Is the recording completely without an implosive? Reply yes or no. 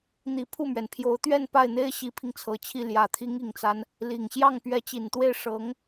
yes